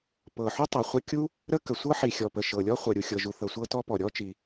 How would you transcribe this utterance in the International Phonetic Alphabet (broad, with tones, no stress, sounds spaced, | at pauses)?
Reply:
p ɤ˩ ħ u˥ tˤ ɤ˩ χʷ ə˥ kʲ u˥ | ɾ ə˥ k ə˩ sʷ ɤ˥ ħ i˩ xʲ ɔ˩ p ə˩ ʃ ɤ˩ lʲ ɔ˥ χʷ ɤ˩ ɾʲ u˩ xʲ ɤ˩ ʒ u˩ θ ɤ˩ sʷ ɤ˥ t ɔ˥ p ɔ˩ ɾʲ ɔ˥ t͡ʃ i˩